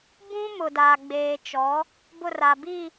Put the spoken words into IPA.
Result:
bũ˦mʊ˨daː˨ ɡ͡beː˨t͡ʃɔ˨˦ | bʊ˦˨ra˨biː˦˨

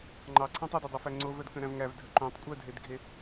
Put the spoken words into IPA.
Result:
ŋ͡ǃɑǀʰæ̃ tˤœdedˤefæ ŋ͡ǀovœdkœ̃ɾæ̃v ŋævdʱœ ǃõtˤ kʷʼœdʱedɡʱe

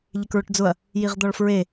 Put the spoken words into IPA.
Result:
ʎɪkɹʊʈd͡zʊɐ̯ | jiʁd̪ɔɭfɹe

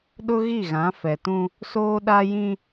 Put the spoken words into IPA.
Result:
ɗʊ˦ɣi˦˨ɣã˨˦ fɛ˨tũ˦ | soː˦ɗa˦jĩ˦

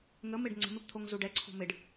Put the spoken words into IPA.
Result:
ŋəmɪɖ ŋ͡ǀə̤mɪpt̪ʰoŋ zuɖɛǀʰo̤ mɪɖ

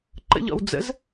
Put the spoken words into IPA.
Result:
ǃə̰ʎɔ̰w d͡zə̰z

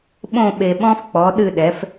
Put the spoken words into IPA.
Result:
ɓõ˥˧ ɓe˨ɓɔ̃˦˥f k͡pɔ˨˥ɗɨ˥˧ɗɛ˨˥f

